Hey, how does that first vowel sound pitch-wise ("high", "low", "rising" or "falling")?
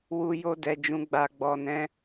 low